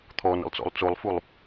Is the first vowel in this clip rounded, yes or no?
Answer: yes